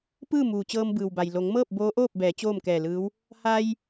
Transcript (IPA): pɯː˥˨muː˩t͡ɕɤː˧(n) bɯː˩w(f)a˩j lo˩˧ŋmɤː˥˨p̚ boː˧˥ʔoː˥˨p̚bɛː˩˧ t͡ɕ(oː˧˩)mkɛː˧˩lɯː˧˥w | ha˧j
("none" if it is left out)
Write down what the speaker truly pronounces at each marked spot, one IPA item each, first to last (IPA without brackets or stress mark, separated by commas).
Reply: m, b, oː˥˨